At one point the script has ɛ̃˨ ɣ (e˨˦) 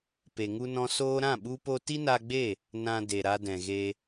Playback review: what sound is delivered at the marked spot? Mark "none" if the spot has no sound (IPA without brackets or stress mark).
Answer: e˧